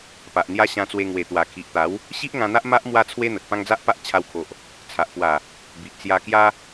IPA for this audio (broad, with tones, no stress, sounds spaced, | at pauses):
p a˨ ʔ n̪ j a˦ ɕ ã˧ t͡s w e˧ ŋ w e˨˩ t̪ w a˨˩ kʰ i˨ ʔ t̪ a˨˦ w | ɕ i˦ ʔ ŋ ã˧ n̪ a˦ ʔ m a˦ ʔ m w a˦ t͡sʰ w e˦ n̪ ə˨ t̚ p ã˦ ŋ d͡z a˦ ʔ p a˦ ʔ t͡ɕʰ a˧ w kʰ o˨ ʔ | t͡sʰ a˨ ʔ p w a˨˩ | b i˨ ʔ t͡s j a˧ k j a˦